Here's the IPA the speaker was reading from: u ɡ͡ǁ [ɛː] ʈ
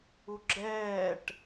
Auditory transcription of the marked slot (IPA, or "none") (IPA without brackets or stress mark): ɛː